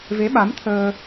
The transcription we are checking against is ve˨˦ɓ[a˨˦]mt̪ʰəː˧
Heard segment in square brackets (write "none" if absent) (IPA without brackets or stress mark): a˨˦